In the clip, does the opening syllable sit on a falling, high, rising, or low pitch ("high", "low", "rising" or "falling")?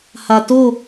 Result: low